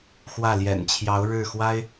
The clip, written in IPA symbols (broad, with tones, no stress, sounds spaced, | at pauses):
x w ä˥˩ l j ɛ̰˨˩ n t͡ɕʰ j ɑ˧˥ ʊ̯ ɻ ɻ̩˥˩ x w a˥ ɪ̯